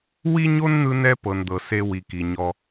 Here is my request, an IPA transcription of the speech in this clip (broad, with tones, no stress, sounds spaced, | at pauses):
w i˦ ɲ o˦ n n̪ ɯ˦ n ɛ˦ p ɤ˨ n d̪ ɤ˨ s e˦ w i˨ k i˨ ɲ ɔ˦